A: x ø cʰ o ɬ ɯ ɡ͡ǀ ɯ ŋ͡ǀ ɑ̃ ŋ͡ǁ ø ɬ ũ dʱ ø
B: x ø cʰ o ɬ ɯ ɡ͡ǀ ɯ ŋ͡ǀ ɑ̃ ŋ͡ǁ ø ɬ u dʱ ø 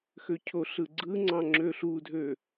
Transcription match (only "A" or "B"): B